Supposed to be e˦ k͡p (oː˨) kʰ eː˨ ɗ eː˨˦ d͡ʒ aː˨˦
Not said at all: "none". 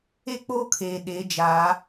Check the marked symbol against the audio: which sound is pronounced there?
oː˦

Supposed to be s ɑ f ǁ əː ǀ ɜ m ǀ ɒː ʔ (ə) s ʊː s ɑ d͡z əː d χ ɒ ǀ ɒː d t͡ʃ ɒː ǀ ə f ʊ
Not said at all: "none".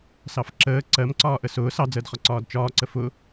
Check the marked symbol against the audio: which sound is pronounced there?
ə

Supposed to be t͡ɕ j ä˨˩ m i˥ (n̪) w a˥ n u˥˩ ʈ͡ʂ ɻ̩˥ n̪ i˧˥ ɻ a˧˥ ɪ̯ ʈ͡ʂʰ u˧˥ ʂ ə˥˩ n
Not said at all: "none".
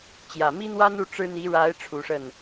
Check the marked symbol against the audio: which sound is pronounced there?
n̪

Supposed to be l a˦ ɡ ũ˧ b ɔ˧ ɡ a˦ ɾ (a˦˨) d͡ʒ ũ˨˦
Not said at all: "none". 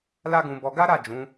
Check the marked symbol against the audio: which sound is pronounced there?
a˦˨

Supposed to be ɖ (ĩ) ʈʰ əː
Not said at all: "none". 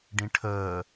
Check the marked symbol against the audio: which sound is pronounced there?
ĩ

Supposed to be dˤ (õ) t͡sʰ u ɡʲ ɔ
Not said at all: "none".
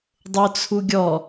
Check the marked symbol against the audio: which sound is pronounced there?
o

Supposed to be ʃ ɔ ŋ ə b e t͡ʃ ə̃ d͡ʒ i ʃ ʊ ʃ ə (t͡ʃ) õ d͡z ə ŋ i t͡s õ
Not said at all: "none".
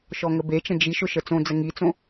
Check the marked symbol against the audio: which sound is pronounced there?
t͡s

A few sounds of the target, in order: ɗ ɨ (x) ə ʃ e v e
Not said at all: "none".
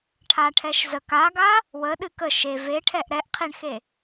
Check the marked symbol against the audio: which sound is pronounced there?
k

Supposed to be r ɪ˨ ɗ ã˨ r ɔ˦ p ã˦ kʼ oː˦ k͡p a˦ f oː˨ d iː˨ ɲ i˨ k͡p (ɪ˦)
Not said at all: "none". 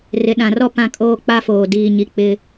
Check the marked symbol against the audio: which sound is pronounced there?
ɪ˦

